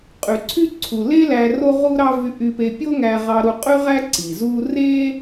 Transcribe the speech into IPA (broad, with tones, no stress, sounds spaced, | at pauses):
qʼ y˩ ǀʰ y˥ ǀʰ u˩ l e˥ l æ˧ r o˥ ʁ u˥ ɾ ɑ˥ v y˧ ʔ y˧ p e˧ pʲ o˥ ŋ æ˧ ʁ ɑ˧ ɾ u˧ qʼ y˥ ʁ æ˥ ǀ i˩ z u˥ r e˥